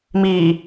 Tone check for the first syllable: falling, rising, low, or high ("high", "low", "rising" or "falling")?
low